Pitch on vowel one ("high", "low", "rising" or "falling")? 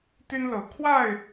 high